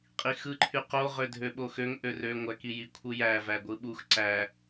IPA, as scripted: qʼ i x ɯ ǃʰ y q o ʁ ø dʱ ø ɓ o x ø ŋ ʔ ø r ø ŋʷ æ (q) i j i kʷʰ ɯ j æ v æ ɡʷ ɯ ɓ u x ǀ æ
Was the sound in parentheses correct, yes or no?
no